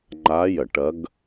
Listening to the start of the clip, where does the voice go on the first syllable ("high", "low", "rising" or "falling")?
rising